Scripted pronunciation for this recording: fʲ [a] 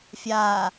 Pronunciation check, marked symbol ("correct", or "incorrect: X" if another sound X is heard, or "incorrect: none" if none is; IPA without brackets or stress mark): correct